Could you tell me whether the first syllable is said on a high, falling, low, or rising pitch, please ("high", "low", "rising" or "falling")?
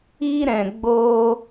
high